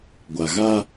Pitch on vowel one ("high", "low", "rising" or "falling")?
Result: low